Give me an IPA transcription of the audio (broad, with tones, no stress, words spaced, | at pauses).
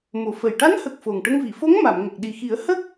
mo˨˩˨fə˨˩j ʈa˧˥nhə˨˩k̚ fo˨˩ŋʈə˧ŋvi˨˩˨ fo˧˥ŋ ma˨˩˨mŋə˨˩k̚ ɗi˨˩xi˨˩˦ə̯ hə˦˥k̚